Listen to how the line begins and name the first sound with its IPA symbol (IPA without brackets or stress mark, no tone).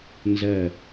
n